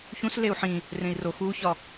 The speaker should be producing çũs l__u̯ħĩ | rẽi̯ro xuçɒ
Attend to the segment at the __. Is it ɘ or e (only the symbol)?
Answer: e